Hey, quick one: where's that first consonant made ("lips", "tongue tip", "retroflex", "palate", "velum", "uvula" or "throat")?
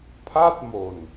lips